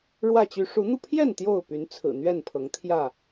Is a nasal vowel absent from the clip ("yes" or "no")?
yes